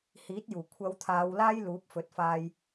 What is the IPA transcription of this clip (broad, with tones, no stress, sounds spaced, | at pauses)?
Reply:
h iː˨˥ t̚ j uː˨˩ kʷʰ ɐ˨˧ w t̪ʰ aː˨˧ w l aː˥ j l uː˨˥ p̚ f ɵ˨˥ t̚ f aː˧ j